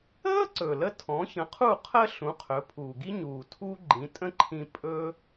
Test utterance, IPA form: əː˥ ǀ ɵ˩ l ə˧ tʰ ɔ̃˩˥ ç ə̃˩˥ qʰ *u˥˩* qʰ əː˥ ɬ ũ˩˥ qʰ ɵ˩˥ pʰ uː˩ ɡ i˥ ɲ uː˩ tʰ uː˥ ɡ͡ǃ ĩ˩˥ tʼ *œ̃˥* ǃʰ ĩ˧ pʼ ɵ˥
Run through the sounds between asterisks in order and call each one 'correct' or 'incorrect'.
correct, incorrect

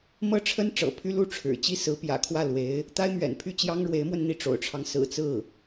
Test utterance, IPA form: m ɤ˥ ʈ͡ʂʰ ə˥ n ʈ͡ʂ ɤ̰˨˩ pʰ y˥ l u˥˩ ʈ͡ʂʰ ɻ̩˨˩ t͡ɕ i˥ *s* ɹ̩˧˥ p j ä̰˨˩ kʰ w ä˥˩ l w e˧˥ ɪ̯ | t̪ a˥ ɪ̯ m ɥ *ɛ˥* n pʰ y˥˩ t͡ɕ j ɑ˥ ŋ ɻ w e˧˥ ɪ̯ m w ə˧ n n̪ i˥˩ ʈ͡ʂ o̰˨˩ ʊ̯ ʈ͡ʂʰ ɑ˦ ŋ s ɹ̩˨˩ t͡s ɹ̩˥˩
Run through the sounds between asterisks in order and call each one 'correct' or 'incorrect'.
correct, incorrect

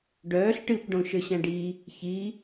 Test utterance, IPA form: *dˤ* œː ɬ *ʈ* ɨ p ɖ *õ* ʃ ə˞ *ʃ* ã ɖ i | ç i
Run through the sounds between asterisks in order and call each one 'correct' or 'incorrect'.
incorrect, correct, correct, incorrect

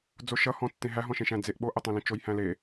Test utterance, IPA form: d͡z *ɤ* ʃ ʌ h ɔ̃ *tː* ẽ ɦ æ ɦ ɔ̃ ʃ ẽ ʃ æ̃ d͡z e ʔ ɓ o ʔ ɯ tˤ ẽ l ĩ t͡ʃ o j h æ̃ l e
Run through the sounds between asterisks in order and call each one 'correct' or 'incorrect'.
incorrect, correct

